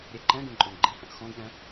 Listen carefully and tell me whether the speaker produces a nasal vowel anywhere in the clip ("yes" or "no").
yes